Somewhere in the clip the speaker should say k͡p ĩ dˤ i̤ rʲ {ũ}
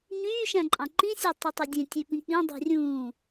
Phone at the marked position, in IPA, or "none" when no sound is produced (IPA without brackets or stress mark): ũː